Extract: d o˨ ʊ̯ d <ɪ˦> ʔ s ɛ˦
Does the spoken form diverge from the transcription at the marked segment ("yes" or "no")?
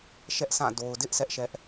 no